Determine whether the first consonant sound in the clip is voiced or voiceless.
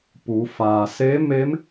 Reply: voiceless